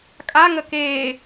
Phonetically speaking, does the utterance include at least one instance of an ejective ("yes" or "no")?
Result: yes